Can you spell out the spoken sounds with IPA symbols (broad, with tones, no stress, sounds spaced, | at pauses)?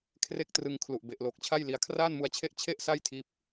kʰ r e˥˩ k̚ t r ɯ˧ ŋ kʰ l u˨˩ ʔ b e˨˩ ʔ l oː˨˩ k̚ t͡ɕʰ a˥˩ j l i˧ a̯ kʰ r aː˥˩ n m u˧ a̯ t͡ɕʰ e˥˩ ʔ t͡ɕʰ e˥˩ ʔ s a˥˩ j tʰ iː˦˥ p̚